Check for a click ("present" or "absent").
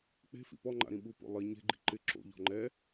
present